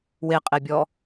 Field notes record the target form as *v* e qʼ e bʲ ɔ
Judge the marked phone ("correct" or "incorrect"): incorrect